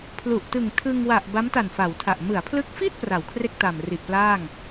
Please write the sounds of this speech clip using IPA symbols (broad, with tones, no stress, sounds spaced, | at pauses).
pʰ l u˨˩ ʔ t ɯ˨˩ ŋ tʰ ɯ˧ ŋ w a˨˩ ʔ b a˦˥ m t a˨˩ n f a˩˦ w tʰ a˨˩ ʔ m ɯ˩˦ a̯ pʰ l ɯ˦˥ k̚ f iː˥˩ t̚ p r a˩˦ w kʰ r e˥˩ k̚ t a˨˩ m r i˨˩ ʔ p l aː˥˩ ŋ